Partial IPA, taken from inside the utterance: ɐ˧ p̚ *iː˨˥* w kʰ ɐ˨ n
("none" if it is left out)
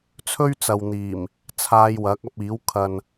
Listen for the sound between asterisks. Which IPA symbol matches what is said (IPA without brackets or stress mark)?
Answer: iː˨˥